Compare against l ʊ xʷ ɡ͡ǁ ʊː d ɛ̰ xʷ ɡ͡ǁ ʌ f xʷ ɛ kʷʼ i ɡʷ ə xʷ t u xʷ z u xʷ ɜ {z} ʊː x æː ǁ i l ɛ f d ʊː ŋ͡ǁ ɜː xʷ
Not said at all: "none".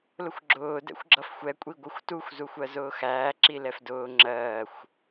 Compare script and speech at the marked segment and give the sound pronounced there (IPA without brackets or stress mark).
z